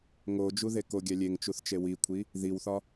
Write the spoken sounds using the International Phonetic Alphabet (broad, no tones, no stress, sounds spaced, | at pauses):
ŋ o d͡ʒ u ð e k o ɡʲ æ lʲ e ŋ t͡ʃ u θ t͡ʃ e w i kʷʰ i | ð i w θ ɒ